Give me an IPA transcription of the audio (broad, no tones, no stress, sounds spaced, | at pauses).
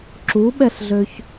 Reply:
ǁ u ɓ ɛ ɬ ɮ ø ç